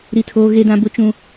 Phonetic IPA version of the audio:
ɾ i˦ tʰ oː˦ ɣ e˦ d ã˦ b ʊ˦ t͡ʃ ũ˦

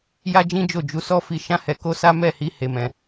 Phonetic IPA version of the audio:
j a˦ d͡ʒ ĩ˦ d͡ʒ o˦˨ d͡ʒ u˨˦ s ɔ˦ f i˧ ʃ ã˦ h ɛ˧ k o˦ s a˦ m ɛ˦˨ h i˧ h e˨ m ɛ̃˨

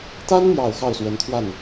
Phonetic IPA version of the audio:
t̪ a˥ n m j ɑ˨˩ ʊ̯ x ɑ˥˩ ʊ̯ s w ə˧˥ n t̪ʰ w a˥˩ n

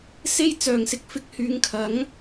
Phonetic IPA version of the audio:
s e˥ j t͡s œː˨˩ ŋ s ɪ˨ k̚ f ɪ˧ k̚ h yː˨˧ ŋ kʰ ɐ˨˥ ŋ

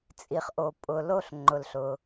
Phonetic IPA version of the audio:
t͡sʼ i˩ χ ʔ o˩ pʼ ʊ˩ l o˧ ɬ ŋ͡ǃ ʊ˩ l ɬ ʊ˩

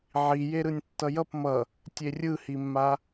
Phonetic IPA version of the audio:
ʕ i j e ɾ ɯ nʲ tː ʌ j ʌ p m ʌ | tʲ e rʲ ɯ h i mː a

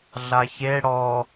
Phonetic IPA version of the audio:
ɮ a ç e ɽ ɔ

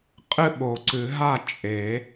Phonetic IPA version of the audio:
qʼ ɨ˥˨ ɓ o˨˩˦ ǀ ɨ˨˩˦ ɦ a˥˨ t͡ʃʼ e˨˩˦

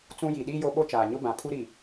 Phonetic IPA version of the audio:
t͡s ũ˦ j i˨ ɗ iː˦ j o˦ ɓ o˦ t͡ʃ aː˨ ɲ ʊ˦ b ã˨ pʰ u˦ ɾ i˨

